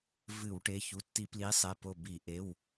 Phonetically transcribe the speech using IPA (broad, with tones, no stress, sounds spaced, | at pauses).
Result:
v ɨ˧˩˧ w ʈ e˩˧˩ ç u˩˧˩ tː i˧˩˧ p l i˨˥ sˤ e˩˧˩ p o˧˩ b i˧˩˧ ʔ e˩˧˩ w